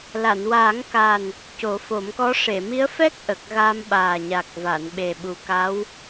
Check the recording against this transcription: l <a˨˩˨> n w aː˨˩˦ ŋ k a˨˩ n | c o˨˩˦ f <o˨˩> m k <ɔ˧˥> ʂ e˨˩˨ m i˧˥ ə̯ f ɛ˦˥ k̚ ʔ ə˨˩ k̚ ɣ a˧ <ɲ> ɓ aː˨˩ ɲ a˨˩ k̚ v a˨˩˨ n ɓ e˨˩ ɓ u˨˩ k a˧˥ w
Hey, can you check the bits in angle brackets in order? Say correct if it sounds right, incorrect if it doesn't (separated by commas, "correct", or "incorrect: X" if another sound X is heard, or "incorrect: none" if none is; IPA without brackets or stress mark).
correct, incorrect: o˨˩˦, correct, incorrect: m